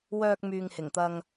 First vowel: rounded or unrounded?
rounded